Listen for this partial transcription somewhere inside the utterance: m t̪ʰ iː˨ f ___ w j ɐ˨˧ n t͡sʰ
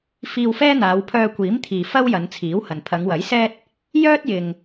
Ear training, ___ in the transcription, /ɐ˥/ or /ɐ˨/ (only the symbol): ɐ˥